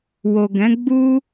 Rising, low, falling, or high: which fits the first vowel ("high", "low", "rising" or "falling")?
low